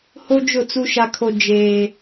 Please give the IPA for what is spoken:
h o˦ d͡ʒ ʊ˦˨ t͡s u˦ ʃ a˦ kʰ o˦ d͡ʒ eː˦

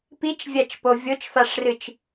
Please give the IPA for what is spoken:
p i t͡ʃ vʲ a t͡ʃ p o vʲ o t͡ʃ f a ʂ r ɨ t͡ʃ

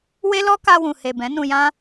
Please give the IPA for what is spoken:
w e˦ l ɔ˦ k a˧ w ũ˨ h e˨ b ɛ̃˨˦ n ũ˧ j ã˦

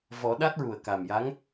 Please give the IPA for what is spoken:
v ɔ˨˩˦ ɗ a˦˥ t̚ ɹ u˨˩ ə̯ k a˨˩ m j a˧˥ ŋ

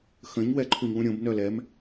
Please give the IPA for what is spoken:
x ə̃ ɲ w ɛ ǃʰ u ɲ w ũ ɾʲ õ b n œ l ɛ m

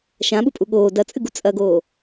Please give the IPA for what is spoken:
ʃ ã ɓ u pʼ u ɠ oː d ɐ t͡sʼ ɨ ɡ u t͡sʼ ɐ ɡ oː

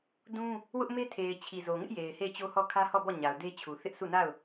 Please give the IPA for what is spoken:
d ũ˦ | w ʊ˦ ʔ m e˦ tʰ e˨ ɪ̯ t͡ɕʰ i˨ z o˨ ŋ ɪ˦ ʔ j e˨ ɪ̯ h e˦˨ ɪ̯ t͡ɕ o˦ h ɔ˦˨ kʰ ä˦ h ɔ˦˨ b ɔ˦˨ ɲ a˨ ʊ̯ d e˦ t͡ɕʰ u˨ θ ɪ˦ ʔ s u˦˨ n a˦˨ ʊ̯

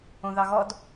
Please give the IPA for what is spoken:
õ ð ɑ ɣ ɔ d

